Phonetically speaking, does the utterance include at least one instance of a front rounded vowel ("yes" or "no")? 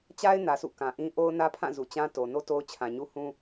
no